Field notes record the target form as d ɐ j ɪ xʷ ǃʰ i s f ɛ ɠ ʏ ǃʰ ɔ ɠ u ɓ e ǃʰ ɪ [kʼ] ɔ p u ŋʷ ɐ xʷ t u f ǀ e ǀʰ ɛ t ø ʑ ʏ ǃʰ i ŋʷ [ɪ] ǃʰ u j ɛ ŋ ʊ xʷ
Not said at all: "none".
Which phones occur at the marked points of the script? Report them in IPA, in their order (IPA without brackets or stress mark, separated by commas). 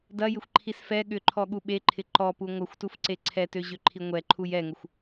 ǃ, ɛ